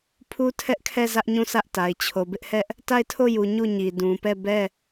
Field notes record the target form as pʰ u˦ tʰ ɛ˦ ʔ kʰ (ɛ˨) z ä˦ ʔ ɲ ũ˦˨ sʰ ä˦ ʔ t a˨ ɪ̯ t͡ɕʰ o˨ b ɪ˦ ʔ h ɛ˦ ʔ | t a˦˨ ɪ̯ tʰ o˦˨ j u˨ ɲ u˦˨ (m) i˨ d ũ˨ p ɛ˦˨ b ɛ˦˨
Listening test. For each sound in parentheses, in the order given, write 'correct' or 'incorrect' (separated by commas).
incorrect, incorrect